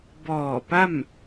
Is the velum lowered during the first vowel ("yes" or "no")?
no